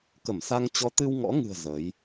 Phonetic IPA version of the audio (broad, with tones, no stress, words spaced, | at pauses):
kə˧˩msa˧ŋ t͡ɕɔ˨˦t̪ɨ˧wŋɔ̰˧˥ŋɨ̤˨˩ə̯ zə˨˦j